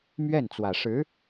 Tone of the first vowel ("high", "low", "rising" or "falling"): falling